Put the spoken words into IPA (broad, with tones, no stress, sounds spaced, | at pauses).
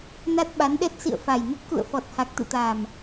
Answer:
n a˦˥ t̚ ɓ a˨˦ n ɗ ɛ˦˥ t̚ s ḭ˧˨ ə̯ f a˨˩ j n ə˦˥ t̚ k ṵ˧˨ ə̯ f ɔ˨˩ t̚ h a˨˩ k̚ t̪ ɨ̰˧˨ t̪ aː˨˩ m